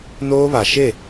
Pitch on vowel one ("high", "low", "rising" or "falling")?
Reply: high